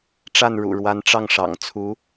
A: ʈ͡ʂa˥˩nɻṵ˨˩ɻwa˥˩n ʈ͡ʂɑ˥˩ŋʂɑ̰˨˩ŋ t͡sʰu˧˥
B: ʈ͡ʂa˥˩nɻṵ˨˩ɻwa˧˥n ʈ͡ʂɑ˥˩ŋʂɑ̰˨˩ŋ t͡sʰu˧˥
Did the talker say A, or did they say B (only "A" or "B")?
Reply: B